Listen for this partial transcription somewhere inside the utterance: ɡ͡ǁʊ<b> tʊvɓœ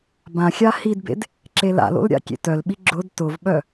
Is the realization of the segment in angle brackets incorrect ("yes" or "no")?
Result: yes